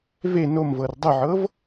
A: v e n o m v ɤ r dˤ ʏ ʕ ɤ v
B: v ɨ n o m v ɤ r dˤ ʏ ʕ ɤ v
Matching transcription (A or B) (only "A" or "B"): A